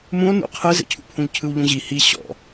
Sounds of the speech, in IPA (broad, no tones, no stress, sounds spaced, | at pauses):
m ũ o̯ n ṵ qʰ ɯ z ḛ cʰ ṵ pʰ ũ ʎ cʰ ɯ w ʎ ũ ʑ i h i ɕ ɔ̰